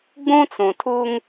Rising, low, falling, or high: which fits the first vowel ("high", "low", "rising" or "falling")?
high